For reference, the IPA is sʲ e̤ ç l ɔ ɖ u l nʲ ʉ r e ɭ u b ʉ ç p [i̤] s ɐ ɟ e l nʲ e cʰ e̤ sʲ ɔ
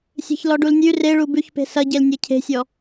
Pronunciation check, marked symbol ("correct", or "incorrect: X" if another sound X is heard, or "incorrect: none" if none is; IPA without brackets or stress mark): incorrect: e̤